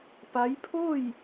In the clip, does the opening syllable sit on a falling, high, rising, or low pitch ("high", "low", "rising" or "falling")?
rising